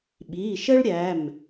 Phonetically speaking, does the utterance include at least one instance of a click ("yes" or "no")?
no